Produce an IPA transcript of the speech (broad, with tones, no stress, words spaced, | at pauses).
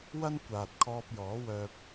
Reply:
wɐ˥n kʷaː˨t̚kʰɔː˧p̚jɔː˨˥wœː˧p̚